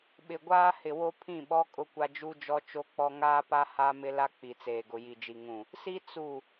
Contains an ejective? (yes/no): yes